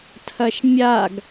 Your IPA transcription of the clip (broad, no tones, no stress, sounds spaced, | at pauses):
tʰ ɐ ʃ mʲ a ɡ